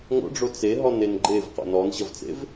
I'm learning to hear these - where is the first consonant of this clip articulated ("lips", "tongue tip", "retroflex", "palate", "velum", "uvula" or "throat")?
velum